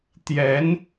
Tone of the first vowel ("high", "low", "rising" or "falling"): rising